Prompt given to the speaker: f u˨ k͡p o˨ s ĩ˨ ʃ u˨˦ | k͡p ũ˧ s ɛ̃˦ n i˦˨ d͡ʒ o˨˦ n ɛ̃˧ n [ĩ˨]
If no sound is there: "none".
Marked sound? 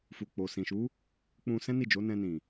ĩ˨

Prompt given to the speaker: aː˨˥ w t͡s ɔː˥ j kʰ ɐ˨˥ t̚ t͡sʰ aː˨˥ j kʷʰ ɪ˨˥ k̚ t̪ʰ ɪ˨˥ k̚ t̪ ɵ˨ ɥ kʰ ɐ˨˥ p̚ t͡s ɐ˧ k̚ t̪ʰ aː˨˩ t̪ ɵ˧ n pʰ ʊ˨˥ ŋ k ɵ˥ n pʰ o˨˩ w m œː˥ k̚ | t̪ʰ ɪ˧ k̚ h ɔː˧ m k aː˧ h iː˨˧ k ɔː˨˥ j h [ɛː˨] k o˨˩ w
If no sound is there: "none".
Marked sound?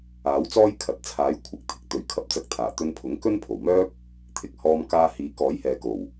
ɛː˨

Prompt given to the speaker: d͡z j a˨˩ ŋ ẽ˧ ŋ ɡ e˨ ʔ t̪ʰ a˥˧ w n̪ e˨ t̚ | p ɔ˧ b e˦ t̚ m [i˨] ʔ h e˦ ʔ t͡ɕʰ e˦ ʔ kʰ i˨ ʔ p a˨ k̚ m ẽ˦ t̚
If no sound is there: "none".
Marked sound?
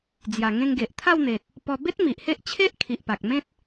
i˨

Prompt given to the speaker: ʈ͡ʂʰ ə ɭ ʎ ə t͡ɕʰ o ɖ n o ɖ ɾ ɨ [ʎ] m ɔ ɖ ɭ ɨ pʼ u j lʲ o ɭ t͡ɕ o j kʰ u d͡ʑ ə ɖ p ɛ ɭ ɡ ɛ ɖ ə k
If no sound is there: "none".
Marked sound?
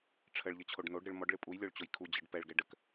ɭ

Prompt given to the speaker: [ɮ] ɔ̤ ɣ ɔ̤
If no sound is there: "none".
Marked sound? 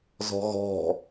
z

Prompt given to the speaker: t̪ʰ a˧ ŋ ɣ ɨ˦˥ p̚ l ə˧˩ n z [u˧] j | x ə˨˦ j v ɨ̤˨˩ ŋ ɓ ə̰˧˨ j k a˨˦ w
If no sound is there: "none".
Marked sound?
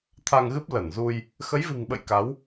u˧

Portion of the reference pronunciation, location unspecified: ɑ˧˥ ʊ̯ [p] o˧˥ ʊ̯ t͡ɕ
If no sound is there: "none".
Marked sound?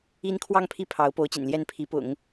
p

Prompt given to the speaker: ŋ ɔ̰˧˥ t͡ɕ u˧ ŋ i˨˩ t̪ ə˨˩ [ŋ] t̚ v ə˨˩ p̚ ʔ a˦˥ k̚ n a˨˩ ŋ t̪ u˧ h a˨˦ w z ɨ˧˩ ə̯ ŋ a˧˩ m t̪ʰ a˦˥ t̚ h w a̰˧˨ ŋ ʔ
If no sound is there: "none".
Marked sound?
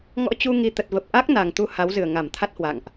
none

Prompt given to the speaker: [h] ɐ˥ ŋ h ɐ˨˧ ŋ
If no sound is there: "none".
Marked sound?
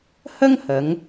h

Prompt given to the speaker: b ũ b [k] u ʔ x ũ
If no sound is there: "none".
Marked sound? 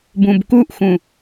k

